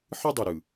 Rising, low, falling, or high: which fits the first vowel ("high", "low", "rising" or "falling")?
high